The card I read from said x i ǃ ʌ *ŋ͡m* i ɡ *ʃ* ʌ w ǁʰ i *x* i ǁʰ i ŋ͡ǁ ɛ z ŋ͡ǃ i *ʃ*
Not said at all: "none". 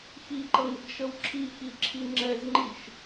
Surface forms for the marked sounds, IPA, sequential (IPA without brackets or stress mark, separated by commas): ŋ, ʃ, x, ʃ